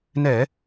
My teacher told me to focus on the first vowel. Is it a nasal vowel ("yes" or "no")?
no